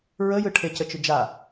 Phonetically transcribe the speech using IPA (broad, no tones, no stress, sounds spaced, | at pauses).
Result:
ɹ ə j ɯ ʈʰ e c ə t͡ʃ ʏ d͡ʒ a